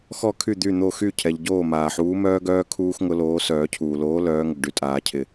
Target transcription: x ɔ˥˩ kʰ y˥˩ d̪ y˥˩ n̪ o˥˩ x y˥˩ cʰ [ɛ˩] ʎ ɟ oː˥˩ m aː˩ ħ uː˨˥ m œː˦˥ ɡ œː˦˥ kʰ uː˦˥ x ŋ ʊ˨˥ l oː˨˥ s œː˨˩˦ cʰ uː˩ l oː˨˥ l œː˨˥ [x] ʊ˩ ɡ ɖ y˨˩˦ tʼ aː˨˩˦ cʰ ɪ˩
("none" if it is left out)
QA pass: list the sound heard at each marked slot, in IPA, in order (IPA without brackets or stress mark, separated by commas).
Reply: ɛ˩, ŋ